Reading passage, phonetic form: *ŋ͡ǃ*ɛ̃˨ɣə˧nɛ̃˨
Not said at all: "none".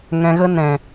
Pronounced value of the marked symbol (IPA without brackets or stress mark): ŋ